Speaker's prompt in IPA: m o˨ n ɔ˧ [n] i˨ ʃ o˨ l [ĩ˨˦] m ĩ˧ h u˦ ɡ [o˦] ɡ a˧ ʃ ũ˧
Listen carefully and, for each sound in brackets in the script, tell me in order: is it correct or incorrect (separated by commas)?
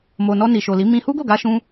correct, incorrect, incorrect